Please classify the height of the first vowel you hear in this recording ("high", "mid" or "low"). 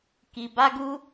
high